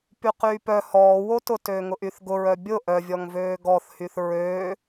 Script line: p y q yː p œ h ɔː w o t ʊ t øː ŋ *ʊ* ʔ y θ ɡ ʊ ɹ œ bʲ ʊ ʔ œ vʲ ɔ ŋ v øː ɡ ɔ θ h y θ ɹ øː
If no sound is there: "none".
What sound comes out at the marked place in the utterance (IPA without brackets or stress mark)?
ʊ